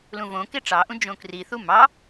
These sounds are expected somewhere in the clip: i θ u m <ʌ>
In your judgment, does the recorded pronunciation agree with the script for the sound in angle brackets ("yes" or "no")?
no